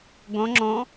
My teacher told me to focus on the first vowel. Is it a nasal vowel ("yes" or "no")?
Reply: yes